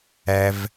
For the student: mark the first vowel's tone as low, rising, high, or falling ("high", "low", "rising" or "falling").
low